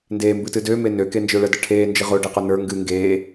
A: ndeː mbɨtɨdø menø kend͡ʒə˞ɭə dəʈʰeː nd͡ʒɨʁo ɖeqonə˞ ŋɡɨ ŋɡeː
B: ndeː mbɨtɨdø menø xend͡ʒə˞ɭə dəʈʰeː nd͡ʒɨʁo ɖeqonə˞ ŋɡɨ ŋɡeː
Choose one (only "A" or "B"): A